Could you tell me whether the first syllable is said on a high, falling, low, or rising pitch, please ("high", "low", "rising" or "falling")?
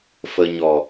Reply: low